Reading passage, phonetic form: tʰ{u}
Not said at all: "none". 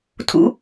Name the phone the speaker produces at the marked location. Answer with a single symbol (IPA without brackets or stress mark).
ṵ